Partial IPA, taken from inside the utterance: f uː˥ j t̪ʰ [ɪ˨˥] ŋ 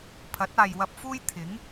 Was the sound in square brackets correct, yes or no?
yes